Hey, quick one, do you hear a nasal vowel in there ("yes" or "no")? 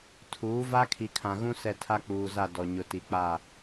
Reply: yes